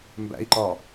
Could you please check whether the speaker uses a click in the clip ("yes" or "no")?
yes